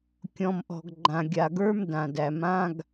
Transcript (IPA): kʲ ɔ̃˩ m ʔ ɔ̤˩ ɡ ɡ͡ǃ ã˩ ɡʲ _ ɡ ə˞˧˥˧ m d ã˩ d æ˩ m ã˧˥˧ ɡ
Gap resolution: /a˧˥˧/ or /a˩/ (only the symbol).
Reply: a˩